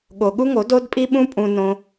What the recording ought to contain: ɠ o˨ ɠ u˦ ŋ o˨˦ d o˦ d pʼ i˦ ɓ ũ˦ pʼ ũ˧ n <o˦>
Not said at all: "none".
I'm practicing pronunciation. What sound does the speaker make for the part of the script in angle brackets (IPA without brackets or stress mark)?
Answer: õ˦